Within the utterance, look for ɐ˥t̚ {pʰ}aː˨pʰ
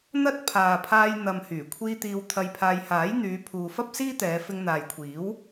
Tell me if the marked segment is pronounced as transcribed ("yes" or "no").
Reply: yes